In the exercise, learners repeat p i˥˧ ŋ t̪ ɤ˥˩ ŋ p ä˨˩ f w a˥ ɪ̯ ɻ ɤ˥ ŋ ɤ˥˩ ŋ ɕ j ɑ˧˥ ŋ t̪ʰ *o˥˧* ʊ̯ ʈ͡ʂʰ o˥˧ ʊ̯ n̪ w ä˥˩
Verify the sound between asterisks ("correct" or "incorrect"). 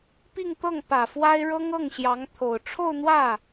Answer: incorrect